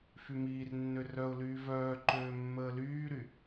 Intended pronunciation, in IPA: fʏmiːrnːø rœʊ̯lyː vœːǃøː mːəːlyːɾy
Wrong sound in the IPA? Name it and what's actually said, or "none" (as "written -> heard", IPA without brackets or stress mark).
ʏ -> y